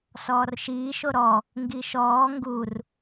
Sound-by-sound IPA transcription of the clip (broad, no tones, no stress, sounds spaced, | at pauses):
s ɔː r ʃ iː ʃ o ɾ ɔ | ŋ ɡ i ʃ ɔː ŋ ɡ u r